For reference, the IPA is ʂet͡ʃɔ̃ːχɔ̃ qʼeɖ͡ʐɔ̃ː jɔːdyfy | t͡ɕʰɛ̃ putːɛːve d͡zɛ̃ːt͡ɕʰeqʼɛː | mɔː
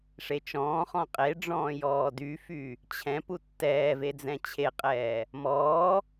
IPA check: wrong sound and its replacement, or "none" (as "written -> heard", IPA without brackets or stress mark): ɛ̃ː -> ɛ̃